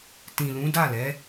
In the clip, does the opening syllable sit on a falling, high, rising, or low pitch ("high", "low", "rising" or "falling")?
low